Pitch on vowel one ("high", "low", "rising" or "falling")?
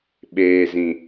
low